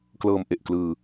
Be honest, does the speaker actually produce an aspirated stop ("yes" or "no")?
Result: no